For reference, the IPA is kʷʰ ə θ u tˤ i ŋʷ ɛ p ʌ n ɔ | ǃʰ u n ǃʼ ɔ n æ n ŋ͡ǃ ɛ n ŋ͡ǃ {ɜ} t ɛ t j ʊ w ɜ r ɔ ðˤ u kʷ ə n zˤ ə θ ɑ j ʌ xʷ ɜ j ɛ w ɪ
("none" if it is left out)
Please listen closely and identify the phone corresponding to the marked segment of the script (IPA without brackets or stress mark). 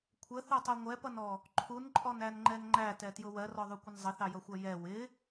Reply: æ